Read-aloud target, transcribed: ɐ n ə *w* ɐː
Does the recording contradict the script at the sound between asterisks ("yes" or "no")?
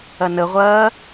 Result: yes